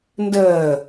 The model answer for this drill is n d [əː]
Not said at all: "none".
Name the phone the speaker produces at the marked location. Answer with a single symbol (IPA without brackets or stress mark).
əː